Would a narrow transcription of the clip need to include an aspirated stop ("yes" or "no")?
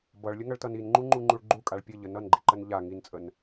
no